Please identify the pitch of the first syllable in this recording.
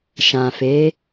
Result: low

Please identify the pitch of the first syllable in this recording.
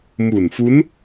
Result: low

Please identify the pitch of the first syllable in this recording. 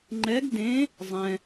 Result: rising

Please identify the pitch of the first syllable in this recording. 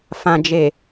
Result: low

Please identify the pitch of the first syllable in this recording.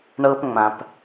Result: high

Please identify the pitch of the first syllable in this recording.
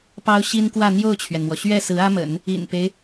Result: high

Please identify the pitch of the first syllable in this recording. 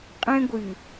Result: high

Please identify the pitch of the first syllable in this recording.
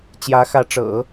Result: rising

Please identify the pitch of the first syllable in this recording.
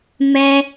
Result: high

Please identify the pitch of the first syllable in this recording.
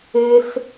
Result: high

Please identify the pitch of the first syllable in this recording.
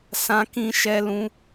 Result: high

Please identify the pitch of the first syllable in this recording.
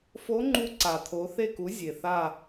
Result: rising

